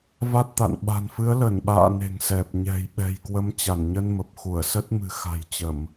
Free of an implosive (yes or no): no